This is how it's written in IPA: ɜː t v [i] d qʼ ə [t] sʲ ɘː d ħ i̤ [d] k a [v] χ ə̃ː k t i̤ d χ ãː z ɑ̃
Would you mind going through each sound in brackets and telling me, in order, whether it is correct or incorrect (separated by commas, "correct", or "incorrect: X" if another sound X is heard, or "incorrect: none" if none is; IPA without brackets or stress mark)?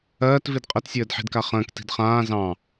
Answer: correct, correct, correct, incorrect: none